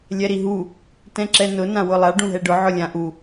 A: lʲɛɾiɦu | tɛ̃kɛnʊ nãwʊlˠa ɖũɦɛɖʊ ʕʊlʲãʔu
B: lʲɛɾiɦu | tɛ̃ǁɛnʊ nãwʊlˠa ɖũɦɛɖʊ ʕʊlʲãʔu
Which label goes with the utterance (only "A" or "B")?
B